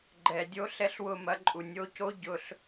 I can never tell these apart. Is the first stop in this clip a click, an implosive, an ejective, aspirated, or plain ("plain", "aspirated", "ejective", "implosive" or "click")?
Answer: click